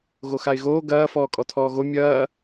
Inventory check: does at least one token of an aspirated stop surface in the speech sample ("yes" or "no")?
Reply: yes